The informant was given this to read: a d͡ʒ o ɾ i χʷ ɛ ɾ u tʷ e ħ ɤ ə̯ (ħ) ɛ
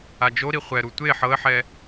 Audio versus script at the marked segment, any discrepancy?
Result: no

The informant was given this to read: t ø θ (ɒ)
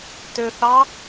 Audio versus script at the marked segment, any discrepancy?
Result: yes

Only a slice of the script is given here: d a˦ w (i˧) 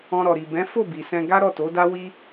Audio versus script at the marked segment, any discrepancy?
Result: yes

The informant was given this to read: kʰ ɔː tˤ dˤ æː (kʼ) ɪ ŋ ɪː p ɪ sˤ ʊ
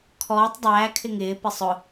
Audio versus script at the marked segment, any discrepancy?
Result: yes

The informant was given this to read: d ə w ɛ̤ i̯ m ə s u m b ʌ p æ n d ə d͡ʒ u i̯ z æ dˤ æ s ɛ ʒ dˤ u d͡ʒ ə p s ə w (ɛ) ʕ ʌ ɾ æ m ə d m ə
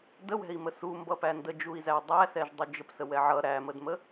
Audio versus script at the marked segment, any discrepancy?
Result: no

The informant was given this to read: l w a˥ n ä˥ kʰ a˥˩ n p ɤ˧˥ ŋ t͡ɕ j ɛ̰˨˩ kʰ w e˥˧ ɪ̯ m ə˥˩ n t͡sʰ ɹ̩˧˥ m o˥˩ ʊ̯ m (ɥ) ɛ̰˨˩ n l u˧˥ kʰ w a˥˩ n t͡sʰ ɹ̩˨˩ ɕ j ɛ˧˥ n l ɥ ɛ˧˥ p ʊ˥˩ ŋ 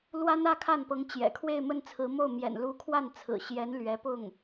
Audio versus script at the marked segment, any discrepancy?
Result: yes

